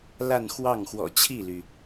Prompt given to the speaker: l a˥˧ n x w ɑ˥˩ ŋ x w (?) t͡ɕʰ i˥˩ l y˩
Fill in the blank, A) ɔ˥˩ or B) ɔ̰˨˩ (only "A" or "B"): B